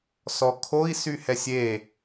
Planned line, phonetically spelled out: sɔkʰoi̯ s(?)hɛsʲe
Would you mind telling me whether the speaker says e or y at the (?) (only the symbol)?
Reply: y